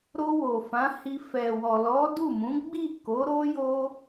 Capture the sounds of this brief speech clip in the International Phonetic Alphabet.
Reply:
ɾ o˧ w o˨ f ã˨˦ h i˧ f ɛ˨ w ɔ˨ l ɔ˨˦ d u˦˨ m ũ˨˦ ɡ͡b i˦˨ k o˨˦ ɾ o˦ j o˦

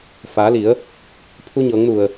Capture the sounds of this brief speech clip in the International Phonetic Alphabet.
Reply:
f aː˩˧ l i˩˧ ə̯ | pʰ u˧ ɲ ɤː˩˧ ŋ n u˩ ə̯

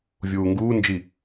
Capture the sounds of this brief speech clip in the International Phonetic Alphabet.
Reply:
vʲ uː ŋ ɡ uː n d͡ʒ i

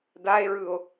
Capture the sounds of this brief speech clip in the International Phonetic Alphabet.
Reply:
d a e̯ ɹ ɯ o̯

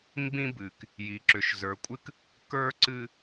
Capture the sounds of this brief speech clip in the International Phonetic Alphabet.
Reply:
m b ĩ˦ b ɨ˨ k | j i˨ ǁ ʏ˨ ʃ z ə˞˨ kʷʼ ɨ˦ k | k ə˞˦ ǀ ɨ˦

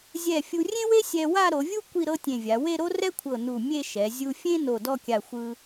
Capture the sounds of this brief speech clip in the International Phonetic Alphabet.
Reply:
zʲ ɛ˧˩ fʲ u˧ rʲ ẽ˥ w e˥ sʲ ɛ˧ w a˥˧ ɾ o˩˧ vʲ u˥ kʷ i˥˧ ɾ ɤ˥ tʲ ẽ˧˩ vʲ a˩˧ w e˥˧ ɾ o˥ r ɛ˥ kʷʰ ɤ˧˩ n u˧˩ mʲ e˥˧ ʃ ɛ˩˧ zʲ u˧ fʲ ẽ˥ n o˧˩ d ɔ˥˧ kʲ a˧˩ xʷ ɯ˧

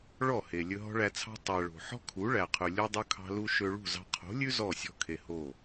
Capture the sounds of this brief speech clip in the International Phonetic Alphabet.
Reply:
ɭ ɔ˦˨ h e˨ lʲ ɵ˧ ɦ ɔ̤˦ ɭ æ˧ t͡sʰ ɑ̤˦ tˤ æ˨ ɭ o̤˨ ħ ɔ̤˦ kʰ u˨˦ ɭ æ˨ qʰ ʉ˨ lʲ o˧ dˤ ɵ˧ kʰ ɑ̤˧ l u˧ ʃ ø˧ ɭ ṳ˦˨ z ɑ̤˧ qʰ o̤˨˦ lʲ ʉ˦ z ɔ˦˨ sʲ ɔ̤˧ kʰ e˨ h o˦˨

